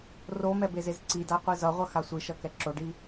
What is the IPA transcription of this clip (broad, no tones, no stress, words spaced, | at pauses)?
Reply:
romɛbezez ǀidaqʷi zʌʁʷʌxa sʷiʃʌkɛ ǁoɖi